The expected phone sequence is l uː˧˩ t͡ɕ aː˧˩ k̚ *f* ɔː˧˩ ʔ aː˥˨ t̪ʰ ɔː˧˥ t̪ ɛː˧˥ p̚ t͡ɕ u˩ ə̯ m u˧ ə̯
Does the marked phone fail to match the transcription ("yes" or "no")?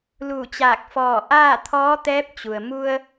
no